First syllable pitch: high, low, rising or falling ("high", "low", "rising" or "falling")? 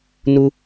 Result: high